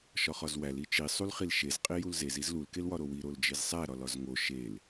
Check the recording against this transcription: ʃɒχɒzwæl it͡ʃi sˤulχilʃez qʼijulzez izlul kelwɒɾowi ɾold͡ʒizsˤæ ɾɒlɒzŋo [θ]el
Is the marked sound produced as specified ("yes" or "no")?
no